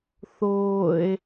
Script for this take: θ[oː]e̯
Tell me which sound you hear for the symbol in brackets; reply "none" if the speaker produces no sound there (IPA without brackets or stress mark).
oː